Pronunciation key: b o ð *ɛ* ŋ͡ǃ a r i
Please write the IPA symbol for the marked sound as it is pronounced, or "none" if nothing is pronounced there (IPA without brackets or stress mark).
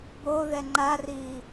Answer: ɛ